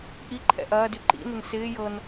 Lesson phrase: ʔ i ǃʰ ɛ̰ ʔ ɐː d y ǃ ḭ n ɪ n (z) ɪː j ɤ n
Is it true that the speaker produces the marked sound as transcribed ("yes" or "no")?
no